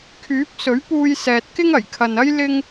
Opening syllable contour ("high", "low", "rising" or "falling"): rising